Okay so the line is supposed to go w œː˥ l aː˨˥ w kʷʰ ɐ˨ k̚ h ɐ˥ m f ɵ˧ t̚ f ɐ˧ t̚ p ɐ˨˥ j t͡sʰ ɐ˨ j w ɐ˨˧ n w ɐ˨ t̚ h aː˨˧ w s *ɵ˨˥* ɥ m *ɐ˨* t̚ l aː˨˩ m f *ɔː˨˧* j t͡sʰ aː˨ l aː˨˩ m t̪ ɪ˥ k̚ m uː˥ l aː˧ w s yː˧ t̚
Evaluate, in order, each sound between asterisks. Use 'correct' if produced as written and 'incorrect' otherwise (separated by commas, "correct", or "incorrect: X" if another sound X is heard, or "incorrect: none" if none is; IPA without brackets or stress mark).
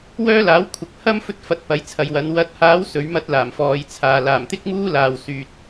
correct, incorrect: ɐ˥, correct